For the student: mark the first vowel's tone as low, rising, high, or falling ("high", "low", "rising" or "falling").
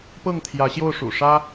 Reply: falling